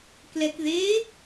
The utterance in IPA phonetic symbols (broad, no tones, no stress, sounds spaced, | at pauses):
k l ɛ k ð e